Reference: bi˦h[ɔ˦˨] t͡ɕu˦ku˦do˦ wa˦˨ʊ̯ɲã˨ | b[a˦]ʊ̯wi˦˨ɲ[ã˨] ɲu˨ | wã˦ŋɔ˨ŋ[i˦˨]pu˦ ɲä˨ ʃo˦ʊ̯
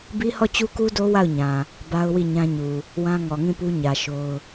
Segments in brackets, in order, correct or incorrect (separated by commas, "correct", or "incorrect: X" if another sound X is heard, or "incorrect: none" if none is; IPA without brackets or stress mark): correct, correct, incorrect: ã˦, incorrect: ĩ˦˨